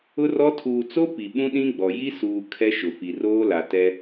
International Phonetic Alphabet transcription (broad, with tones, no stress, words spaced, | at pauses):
ʊ˦rɔ˦ tʰuː˨t͡so˦ pi˨ɓũ˦ɗĩ˦ɡ͡bɔ˨ ji˦suː˨ kʰɛ˦ʃʊ˨ fi˨roː˦la˨tɛ˦